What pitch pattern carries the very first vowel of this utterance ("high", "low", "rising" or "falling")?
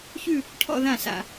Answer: falling